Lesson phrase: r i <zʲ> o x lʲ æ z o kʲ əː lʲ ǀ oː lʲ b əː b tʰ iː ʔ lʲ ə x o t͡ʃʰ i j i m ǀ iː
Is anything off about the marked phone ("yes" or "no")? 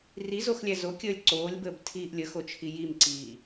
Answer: yes